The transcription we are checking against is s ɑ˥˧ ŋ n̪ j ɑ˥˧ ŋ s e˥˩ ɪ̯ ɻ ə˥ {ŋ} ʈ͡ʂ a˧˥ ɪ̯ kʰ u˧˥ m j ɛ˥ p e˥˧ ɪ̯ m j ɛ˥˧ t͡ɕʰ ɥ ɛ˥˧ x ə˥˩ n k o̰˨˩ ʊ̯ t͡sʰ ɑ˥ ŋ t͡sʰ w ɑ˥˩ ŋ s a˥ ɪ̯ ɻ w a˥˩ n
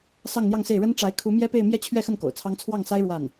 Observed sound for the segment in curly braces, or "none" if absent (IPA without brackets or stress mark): n